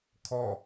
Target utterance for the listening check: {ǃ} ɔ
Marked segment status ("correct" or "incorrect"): incorrect